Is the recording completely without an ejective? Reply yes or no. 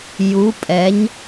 no